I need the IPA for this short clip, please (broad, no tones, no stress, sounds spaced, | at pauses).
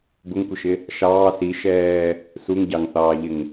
b ʊ ŋ kʷ ɪ ʃ ɪ | ʃ ɑː s i ʃ ɛː | s u ŋ ɟ ɑ ŋ θ ɑː ʎ ɪ ŋ